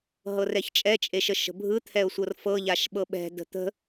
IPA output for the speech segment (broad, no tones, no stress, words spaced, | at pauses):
ɦɤrɛçt͡ʃʼɛ t͡ʃʼeʃəʃə̤bʱɯ t̪ʰɛʊ̯sʷɤrfɤ ʎaʃɓɤɓɛ̤ də̤t̪ə̤